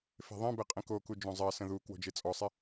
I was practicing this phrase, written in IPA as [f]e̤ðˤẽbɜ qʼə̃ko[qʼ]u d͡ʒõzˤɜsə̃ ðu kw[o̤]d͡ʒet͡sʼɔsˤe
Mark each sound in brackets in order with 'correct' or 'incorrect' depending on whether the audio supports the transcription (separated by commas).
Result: correct, incorrect, correct